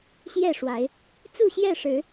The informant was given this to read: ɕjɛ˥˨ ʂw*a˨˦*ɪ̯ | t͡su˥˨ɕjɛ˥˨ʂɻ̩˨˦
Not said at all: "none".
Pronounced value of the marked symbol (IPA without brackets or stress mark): a˨˦